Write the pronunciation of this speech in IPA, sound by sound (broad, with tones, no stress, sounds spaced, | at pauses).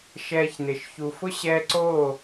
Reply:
ʃ ɛː˧ ç n ɪ˨ ʃ ç u˨ f ʊ˦ ɕ ɛ˧ ǀ o˦˨